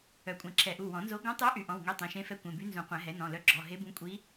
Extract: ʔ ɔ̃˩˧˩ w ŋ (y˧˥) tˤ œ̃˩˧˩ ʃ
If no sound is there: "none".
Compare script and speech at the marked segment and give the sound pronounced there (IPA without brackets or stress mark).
e˧˥